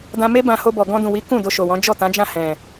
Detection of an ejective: absent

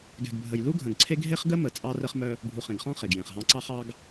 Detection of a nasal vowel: present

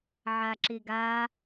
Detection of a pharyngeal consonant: present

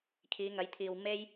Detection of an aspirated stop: present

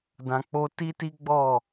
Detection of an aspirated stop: absent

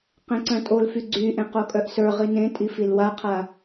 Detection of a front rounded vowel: present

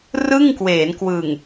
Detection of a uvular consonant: absent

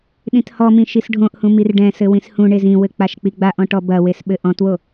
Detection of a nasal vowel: present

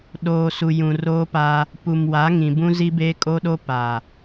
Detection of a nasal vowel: present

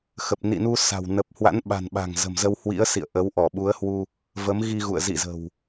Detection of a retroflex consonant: absent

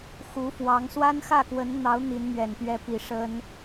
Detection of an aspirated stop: absent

